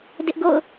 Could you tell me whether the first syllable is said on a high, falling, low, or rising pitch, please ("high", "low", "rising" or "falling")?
high